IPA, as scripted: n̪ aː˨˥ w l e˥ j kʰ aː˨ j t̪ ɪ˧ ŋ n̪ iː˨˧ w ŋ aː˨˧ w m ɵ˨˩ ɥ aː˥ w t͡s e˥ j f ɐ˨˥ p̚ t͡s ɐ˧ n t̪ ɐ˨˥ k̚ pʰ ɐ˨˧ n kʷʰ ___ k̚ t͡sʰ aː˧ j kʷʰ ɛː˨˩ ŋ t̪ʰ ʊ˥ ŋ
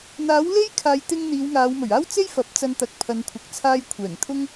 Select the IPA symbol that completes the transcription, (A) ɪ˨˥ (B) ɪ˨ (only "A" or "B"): B